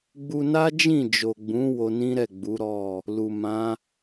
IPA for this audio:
ɡ͡b u˧ n a˦ d͡ʒ ĩ˦˨ d͡ʒ o˨ ɡ͡b ũ˨˦ w o˧ n ĩ˦ ɾ ɛ˦˨ ɡ͡b u˨˦ ɾ ɔ˦˨ | l u˨ m ã˨˦

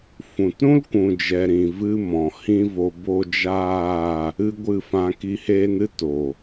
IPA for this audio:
f ũ˨ t ɾ ũ˦ l kʷ ũ˨ d͡ʒ ɛ˨ ɾ ĩ˨ v ɨ˧ m ɔ̃˨ h ĩ˦ v o˧ b o˦ d͡ʒ aː˦˨ | ɨ˦ ɡʷ ɨ˦˨ f ã˧ k i˧ h eː˦ n ɨ˦ t o˨

